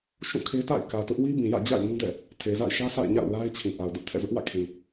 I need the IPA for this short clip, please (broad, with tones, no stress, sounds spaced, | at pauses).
ʃ ũ˦˨ kʰ e˦ t a̰˦˨ ɪ̯ k ä˨ t ʊ˦ ʔ w i˦ b ĩ˨ j ä̰˦˨ d͡ʑ a̰˦˨ ɪ̯ ŋ ũ˦ d ɛ̰˦˨ | tʰ e˨ z a̰˦˨ ɪ̯ ʃ ä˦ sʰ a̰˦˨ ɪ̯ ɲ a̰˦˨ ʊ̯ l a˦ ɪ̯ t͡ɕʰ ĩ˨ ʔ a˨ ʊ̯ d ʊ˦ ʔ tʰ ɛ̰˦˨ z ʊ˦ ʔ w ä̰˦˨ kʰ ĩ˨